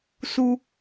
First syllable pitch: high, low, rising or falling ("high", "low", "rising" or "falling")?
low